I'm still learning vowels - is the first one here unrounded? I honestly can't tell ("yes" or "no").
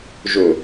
no